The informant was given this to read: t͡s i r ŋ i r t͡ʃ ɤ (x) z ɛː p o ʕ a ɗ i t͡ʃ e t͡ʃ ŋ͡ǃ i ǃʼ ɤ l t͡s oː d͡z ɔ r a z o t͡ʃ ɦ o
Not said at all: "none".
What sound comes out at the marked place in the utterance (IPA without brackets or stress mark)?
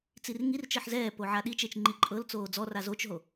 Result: ħ